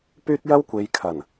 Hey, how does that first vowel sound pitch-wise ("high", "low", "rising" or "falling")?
high